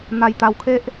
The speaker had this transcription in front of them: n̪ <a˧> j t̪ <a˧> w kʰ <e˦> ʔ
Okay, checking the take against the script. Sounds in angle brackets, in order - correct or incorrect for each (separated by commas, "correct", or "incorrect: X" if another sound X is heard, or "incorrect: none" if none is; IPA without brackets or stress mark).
correct, correct, correct